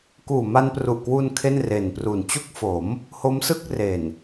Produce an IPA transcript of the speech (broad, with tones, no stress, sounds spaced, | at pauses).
k uː˨˩ m a˧ n p r u˨˩ ʔ k w u˧ n kʰ e˥˩ n r e˨˩ n p r u˨˩ n t͡ɕ u˥˩ k̚ f o˩˦ m | h o˦˥ m s ɯ˥˩ k̚ r e˨˩ n